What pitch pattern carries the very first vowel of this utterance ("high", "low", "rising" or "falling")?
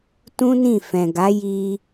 high